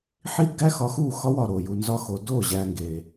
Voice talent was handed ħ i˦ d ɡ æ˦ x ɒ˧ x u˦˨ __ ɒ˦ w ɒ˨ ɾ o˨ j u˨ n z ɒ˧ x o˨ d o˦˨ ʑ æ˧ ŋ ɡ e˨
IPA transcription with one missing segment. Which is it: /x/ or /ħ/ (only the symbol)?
x